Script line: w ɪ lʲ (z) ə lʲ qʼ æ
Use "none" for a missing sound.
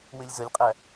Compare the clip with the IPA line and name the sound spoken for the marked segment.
z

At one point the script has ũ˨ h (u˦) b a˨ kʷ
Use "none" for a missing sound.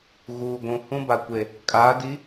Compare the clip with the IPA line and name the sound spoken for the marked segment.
ũ˦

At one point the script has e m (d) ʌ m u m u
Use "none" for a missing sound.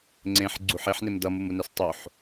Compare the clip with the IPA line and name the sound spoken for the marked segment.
d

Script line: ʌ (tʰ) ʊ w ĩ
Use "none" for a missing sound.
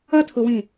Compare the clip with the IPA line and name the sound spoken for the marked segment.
tʰ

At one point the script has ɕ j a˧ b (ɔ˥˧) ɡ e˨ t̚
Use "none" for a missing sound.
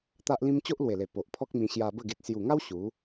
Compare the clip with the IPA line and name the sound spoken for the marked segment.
ə˥˧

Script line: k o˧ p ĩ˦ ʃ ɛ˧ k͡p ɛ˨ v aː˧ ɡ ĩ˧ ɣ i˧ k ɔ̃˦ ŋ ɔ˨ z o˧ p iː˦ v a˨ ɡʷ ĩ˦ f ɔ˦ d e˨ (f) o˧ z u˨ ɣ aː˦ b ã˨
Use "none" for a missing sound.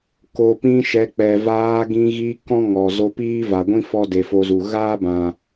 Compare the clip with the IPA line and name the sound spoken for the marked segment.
f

